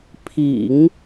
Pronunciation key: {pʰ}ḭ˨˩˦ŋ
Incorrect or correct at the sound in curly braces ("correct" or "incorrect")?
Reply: correct